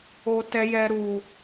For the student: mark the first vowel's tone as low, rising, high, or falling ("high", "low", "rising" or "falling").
high